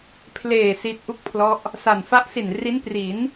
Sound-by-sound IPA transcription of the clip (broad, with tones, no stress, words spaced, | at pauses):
pʰleː˨˩ si˦˥t̚ʔu˥˩k̚pʰlɔ˦˥ʔ | sa˨˩n fa˦˥ʔsi˨˩n ri˦˥npri˩˦n